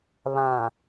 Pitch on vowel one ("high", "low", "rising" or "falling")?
low